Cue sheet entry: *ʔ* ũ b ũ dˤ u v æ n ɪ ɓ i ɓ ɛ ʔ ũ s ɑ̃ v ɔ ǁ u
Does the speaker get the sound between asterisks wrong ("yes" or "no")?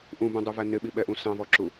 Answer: no